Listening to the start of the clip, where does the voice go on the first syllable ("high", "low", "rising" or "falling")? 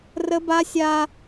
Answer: high